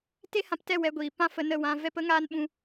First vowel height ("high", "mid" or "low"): mid